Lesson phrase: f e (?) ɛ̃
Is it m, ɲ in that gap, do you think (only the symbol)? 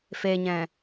ɲ